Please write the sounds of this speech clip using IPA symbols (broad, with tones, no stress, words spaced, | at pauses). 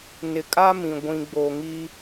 nɪ˨kʼa˦mĩ˨ ɡʷĩ˨ɡ͡bo˨ŋi˦